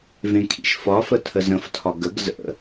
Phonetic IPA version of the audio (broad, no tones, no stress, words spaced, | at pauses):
vẽkʰḭʃfɒfə tʰəzə̃ftʰɒ ɡəɡ zə̰